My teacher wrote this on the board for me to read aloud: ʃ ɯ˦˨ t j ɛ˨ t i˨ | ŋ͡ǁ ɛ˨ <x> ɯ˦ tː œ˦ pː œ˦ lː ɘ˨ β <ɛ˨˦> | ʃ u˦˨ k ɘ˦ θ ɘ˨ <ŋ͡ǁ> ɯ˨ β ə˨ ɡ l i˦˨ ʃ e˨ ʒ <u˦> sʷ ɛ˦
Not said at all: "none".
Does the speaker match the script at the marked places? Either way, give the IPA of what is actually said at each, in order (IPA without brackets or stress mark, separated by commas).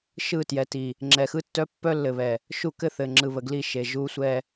x, ɛ˨, ŋ͡ǁ, u˦